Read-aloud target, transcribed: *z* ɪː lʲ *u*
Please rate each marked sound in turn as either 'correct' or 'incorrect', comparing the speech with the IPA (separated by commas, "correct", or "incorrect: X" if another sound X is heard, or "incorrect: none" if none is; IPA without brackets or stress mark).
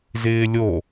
correct, incorrect: o